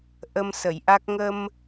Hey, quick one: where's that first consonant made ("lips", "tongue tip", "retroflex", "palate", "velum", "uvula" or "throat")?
throat